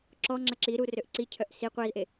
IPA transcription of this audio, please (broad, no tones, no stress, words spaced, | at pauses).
ǁɔŋ͡ǁɐ ǁiɾu røʔǀicʰœʔ si qʷɛzʔe